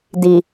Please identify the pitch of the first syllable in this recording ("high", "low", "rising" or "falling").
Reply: low